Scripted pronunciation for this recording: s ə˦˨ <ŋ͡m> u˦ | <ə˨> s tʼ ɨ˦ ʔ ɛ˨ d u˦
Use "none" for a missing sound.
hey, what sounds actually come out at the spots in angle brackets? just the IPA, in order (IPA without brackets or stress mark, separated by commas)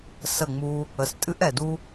ŋ͡m, ə˨